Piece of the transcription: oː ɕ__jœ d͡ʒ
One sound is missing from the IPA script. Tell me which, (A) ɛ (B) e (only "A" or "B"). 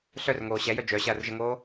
A